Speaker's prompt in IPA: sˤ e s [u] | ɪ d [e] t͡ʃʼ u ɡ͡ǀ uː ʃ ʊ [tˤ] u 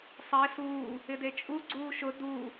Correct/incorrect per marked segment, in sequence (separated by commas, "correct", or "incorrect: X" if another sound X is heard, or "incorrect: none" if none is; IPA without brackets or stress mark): incorrect: uː, correct, incorrect: d